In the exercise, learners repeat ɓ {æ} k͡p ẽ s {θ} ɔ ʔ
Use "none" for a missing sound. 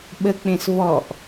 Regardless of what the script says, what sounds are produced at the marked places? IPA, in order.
ə, v

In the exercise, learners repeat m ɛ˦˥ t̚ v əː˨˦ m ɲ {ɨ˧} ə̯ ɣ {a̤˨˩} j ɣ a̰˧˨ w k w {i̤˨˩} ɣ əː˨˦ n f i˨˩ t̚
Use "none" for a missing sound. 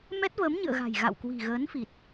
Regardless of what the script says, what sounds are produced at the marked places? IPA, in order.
ɨ̰˧˨, a̤˨˩, i̤˨˩

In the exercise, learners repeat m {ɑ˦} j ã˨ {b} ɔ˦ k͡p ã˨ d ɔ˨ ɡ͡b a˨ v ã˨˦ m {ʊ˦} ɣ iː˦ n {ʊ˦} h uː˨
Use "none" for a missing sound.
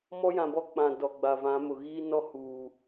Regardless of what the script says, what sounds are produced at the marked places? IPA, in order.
ɔ˦, b, ʊ˨, ɔ˦

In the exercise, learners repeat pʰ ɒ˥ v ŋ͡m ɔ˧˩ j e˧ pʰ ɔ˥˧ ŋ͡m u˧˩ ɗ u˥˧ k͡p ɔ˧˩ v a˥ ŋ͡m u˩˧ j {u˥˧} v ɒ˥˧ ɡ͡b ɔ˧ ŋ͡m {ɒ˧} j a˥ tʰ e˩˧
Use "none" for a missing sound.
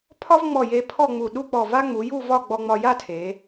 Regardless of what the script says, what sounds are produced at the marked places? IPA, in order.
u˥˧, ɒ˧

